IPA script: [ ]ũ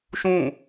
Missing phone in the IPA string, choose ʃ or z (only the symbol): ʃ